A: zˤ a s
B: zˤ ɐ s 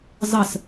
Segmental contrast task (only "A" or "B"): B